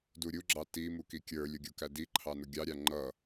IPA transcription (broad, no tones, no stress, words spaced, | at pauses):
duɾʲuɡ͡ǁɑ ti mukikʲə˞lʲʊ ɡʲukædiǃʰɑ nʊɡʲɑɾʲɑ ŋ͡ǃʌ